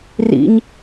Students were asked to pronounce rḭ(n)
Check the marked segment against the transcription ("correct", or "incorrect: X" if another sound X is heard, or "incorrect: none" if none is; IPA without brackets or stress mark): incorrect: ɲ